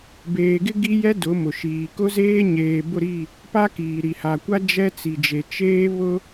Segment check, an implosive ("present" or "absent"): absent